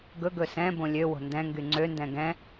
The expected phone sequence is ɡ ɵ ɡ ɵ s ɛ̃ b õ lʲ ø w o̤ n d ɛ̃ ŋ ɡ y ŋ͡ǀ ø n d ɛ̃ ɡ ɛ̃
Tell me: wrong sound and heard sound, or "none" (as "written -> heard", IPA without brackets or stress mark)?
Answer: none